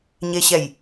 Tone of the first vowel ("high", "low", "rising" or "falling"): low